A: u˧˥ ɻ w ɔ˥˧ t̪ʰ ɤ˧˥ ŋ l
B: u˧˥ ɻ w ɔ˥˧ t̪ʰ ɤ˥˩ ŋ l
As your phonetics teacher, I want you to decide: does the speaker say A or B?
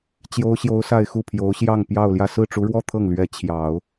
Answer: B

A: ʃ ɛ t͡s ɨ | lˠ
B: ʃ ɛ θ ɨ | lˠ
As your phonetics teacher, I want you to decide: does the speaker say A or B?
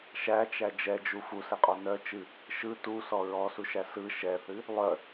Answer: B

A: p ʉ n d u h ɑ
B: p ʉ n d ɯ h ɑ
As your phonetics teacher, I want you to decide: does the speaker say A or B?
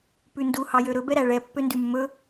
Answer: A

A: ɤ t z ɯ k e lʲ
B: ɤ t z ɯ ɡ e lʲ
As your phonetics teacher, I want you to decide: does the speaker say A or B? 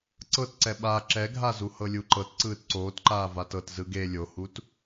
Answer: B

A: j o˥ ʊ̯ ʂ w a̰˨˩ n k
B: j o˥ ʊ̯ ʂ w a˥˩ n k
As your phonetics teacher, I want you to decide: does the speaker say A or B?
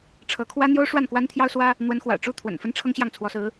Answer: B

